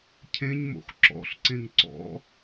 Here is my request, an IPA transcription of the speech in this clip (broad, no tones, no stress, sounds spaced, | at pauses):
cʰ ẽ ɲ m o̰ x ǁ ɔ̰ ɬ ǀ ẽ ŋ ǀ ɔ̰